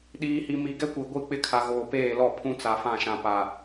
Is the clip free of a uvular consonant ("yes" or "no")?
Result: yes